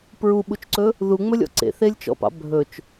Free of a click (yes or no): no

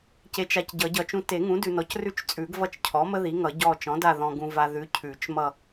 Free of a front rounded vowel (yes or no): yes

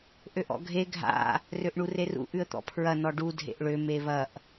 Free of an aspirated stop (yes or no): no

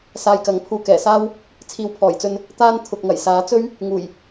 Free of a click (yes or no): yes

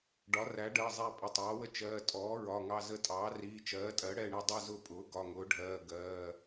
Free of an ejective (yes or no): no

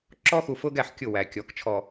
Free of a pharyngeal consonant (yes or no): no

